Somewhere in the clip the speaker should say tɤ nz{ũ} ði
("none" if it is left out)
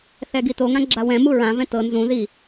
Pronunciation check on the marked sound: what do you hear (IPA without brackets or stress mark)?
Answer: ũ